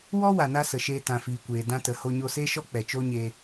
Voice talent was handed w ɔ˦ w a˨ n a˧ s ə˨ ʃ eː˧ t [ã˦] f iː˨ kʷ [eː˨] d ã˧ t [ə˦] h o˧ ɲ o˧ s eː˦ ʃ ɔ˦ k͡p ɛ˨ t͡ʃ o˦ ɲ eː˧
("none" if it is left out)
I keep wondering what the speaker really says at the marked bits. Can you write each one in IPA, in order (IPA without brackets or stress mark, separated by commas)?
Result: ã˨, eː˨, ə˨